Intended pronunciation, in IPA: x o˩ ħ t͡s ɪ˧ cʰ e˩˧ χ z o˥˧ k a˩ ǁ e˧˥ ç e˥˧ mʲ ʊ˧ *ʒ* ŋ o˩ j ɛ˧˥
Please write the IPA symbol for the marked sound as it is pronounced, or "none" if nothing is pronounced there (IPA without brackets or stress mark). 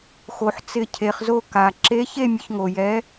ç